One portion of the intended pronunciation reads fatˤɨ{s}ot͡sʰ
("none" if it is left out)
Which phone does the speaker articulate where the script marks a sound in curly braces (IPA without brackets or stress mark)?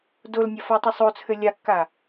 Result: sˤ